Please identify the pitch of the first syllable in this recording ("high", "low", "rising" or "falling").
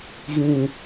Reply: low